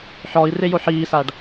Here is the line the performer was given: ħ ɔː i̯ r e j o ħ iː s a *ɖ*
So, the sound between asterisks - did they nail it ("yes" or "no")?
yes